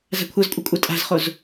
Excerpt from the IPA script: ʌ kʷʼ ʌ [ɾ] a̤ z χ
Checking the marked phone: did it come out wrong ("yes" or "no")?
yes